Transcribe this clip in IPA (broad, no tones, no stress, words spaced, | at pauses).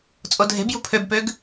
t͡sʼodʱe̤bjṳ pʰøbpøɡ